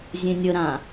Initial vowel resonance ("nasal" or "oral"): nasal